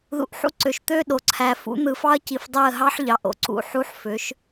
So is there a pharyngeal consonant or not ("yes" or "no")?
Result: yes